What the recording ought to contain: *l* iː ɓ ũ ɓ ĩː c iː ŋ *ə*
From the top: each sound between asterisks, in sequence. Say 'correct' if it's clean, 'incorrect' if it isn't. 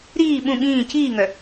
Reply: incorrect: ɾ, incorrect: œ

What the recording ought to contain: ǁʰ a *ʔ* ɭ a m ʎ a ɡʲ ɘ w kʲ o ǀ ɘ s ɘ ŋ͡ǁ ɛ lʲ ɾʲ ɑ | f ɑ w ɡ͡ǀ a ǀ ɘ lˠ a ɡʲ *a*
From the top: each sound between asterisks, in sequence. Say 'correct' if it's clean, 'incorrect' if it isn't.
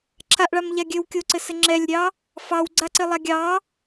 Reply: correct, incorrect: ɑ

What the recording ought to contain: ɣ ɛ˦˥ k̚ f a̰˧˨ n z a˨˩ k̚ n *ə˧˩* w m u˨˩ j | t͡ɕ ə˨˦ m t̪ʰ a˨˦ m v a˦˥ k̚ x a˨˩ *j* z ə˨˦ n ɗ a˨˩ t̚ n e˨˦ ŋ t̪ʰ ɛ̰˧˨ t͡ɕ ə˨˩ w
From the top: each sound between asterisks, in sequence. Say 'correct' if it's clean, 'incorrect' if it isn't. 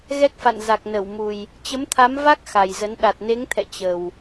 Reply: correct, correct

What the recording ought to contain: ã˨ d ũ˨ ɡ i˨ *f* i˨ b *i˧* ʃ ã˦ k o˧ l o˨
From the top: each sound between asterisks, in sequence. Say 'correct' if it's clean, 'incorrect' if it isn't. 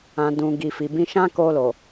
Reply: correct, incorrect: ĩ˧

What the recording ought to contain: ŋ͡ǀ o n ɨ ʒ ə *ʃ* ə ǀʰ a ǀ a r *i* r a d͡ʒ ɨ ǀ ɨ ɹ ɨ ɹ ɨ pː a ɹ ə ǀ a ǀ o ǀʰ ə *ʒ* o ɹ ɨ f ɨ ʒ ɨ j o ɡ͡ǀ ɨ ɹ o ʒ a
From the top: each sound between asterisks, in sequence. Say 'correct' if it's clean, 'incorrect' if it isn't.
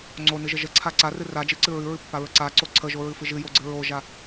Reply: incorrect: ʒ, incorrect: ɨ, correct

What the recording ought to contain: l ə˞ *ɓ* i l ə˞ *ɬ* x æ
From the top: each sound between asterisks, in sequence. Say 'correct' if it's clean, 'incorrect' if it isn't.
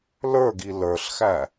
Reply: incorrect: ɡ, correct

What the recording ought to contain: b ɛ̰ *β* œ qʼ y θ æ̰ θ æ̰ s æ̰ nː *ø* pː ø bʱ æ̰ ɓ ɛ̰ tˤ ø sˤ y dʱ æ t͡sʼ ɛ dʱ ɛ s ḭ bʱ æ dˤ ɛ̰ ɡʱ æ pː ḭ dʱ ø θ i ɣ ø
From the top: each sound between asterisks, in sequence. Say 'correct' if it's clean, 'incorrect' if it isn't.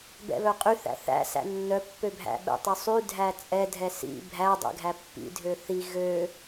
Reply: correct, incorrect: œ

